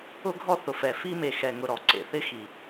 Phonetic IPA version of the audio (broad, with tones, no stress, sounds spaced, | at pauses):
ʊ˦ ɡʱ ɔ˦ θ ʊ˨ f ɛ˨ f i˦ m e˨ x ɛ˨ ŋ ʊ˨ ɾ ɔ˨˦ ǀ ḛ˨ θ ɪ˦ x i˨